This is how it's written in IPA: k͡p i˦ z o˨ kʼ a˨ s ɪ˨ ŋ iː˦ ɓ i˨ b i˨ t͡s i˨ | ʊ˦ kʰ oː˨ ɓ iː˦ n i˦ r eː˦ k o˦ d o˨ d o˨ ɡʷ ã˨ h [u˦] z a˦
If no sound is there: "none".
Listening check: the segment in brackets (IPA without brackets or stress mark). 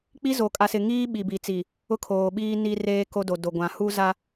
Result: u˦